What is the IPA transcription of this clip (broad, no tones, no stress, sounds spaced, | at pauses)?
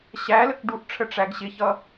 ɕ æ l ə k ɖ u ʔ ʈ͡ʂʰ ə ʈ͡ʂ æ ɡ ɕ ɪ ç ʌ